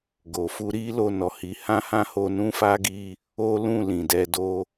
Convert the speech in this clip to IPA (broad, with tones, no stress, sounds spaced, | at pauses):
ɡ o˨ f u˧ ɾ i˦ l o˧ n ɔ˨ h i˨˦ h ã˦ h ã˦ h o˧ n ũ˦ f a˦ ɡ i˧ | o˦ l ũ˦˨ l ĩ˨ d ɛ˧ d o˦